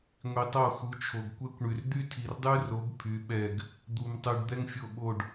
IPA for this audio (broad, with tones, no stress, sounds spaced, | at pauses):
ŋʷ i˨ tˤ o˦˨ x u˨˦ t͡ʃʰ o˨ ɡ kʷ ɛ˥ kʷ ɳ y˨ r d̪ y˥ tʰ i˨ r dˤ y˥ r o˨˦ ɡ pʰ y˨˦ ɓ ɛ˦˨ ɡ | d̪ u˨ m tˤ y˨ ɖ d̪ ɛ˥ ŋ fʲ o˦˨ ɓ o˦˨ ɖ